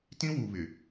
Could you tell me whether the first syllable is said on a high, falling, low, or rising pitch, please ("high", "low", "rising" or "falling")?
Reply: high